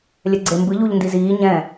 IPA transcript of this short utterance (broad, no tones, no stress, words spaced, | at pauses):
lʲɛɡ͡ǀembɯ ʎuʎndiziː ɲɛ̃